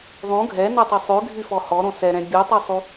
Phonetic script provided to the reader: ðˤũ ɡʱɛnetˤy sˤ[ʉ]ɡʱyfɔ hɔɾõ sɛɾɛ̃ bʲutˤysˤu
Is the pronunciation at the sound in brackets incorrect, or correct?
correct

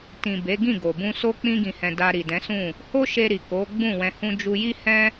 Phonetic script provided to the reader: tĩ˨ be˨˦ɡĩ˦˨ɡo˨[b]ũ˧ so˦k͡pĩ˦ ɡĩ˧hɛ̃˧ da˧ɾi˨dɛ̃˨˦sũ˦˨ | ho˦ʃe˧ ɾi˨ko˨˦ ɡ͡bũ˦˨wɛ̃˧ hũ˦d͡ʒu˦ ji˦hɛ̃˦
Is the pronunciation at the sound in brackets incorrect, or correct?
correct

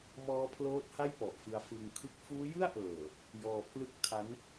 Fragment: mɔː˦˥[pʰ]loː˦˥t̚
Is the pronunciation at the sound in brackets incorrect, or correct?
correct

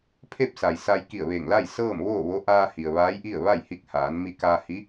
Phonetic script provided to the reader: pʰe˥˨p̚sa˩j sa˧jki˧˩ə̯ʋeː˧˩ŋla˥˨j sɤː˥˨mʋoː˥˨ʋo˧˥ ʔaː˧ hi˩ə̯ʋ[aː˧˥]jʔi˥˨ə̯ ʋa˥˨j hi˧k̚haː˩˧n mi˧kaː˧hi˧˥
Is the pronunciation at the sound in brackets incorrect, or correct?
correct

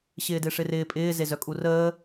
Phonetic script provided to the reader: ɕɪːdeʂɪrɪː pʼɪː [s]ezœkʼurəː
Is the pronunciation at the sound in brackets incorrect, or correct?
incorrect: z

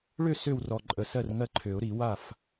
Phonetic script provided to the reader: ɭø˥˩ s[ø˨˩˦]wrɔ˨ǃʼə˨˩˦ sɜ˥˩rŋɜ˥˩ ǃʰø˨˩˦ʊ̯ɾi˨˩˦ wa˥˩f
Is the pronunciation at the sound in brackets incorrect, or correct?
incorrect: ø˥˩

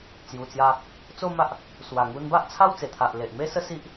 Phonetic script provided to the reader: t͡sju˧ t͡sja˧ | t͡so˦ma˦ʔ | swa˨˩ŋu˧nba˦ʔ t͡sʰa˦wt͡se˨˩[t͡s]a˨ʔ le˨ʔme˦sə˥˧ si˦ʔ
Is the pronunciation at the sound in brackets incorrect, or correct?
incorrect: t̪ʰ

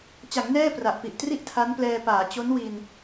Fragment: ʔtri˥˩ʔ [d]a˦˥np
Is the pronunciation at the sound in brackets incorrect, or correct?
incorrect: tʰ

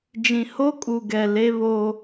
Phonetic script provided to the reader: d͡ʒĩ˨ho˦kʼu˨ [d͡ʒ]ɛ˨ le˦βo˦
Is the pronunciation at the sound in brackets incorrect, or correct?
incorrect: ɡ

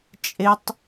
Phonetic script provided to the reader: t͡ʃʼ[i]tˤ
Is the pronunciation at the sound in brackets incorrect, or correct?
incorrect: e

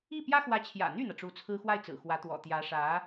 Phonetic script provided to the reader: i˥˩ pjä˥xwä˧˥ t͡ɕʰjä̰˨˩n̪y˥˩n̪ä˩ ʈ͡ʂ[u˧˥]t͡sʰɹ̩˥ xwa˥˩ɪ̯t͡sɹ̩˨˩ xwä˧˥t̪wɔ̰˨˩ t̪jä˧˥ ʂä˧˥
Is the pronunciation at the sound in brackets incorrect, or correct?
correct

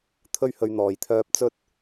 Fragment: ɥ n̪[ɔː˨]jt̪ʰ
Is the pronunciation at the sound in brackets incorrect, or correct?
correct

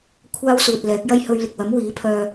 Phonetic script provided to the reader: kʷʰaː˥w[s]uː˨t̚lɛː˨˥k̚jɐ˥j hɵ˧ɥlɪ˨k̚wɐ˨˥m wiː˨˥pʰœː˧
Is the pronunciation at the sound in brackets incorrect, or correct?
correct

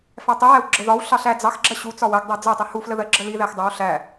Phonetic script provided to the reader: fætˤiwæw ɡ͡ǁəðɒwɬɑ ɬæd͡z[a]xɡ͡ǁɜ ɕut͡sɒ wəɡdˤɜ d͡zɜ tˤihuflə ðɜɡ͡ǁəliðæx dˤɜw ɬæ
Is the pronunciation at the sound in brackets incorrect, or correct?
incorrect: ɑ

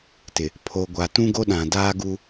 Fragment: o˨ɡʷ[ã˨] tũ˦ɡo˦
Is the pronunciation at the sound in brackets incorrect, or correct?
incorrect: a˨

